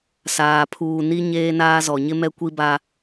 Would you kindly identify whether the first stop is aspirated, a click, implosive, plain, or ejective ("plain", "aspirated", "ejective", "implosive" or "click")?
aspirated